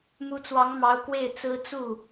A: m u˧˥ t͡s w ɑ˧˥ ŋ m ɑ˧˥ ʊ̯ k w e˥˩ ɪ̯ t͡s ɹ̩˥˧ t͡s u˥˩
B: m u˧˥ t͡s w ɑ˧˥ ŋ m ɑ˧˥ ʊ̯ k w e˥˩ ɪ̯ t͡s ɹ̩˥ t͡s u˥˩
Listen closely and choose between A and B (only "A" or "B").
B